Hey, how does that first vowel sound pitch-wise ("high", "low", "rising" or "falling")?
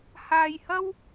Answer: low